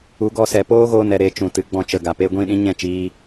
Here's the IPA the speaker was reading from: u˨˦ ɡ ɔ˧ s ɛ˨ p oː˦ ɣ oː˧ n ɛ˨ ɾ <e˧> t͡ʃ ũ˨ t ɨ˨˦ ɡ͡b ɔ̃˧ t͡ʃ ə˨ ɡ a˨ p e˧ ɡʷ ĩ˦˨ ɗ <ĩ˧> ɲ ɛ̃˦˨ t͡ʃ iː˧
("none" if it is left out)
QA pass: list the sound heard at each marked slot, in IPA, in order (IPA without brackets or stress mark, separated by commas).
e˧, ĩ˦